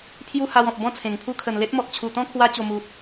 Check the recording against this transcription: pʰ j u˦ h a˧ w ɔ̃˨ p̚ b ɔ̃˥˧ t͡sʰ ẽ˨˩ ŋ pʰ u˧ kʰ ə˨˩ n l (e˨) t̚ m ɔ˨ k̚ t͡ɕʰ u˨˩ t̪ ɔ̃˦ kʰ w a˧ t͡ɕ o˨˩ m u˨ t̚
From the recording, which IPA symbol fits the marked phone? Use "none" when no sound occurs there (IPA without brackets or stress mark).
e˦